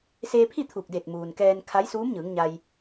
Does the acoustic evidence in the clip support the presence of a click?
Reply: no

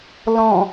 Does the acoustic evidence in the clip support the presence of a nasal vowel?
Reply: yes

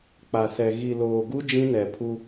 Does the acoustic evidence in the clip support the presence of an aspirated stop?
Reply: yes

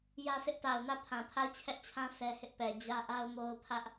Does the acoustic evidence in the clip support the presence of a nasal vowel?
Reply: yes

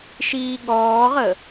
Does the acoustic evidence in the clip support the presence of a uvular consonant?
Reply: yes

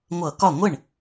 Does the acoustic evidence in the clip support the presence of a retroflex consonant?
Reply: yes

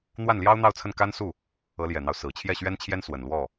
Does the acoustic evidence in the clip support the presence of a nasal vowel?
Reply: no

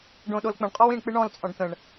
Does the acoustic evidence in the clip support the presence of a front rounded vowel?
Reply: no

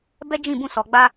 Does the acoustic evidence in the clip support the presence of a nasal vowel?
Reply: yes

